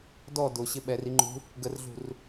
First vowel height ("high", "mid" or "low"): mid